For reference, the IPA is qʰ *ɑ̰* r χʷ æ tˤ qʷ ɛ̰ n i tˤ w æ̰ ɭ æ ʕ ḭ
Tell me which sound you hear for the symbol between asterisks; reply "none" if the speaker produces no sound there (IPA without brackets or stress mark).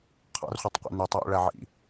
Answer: ɑ̰